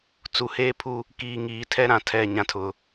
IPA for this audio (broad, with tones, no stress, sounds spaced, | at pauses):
t͡s u˨ h eː˦ pʰ u˦ | k iː˨ ŋ iː˨ tʰ ɛ˦ ɾ ã˨ tʰ ɛ˦˨ ɲ ã˨ tʰ ʊ˨